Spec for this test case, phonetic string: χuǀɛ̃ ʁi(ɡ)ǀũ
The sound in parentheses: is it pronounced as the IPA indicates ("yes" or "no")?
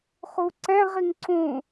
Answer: no